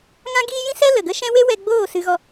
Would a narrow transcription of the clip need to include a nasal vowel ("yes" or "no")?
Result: yes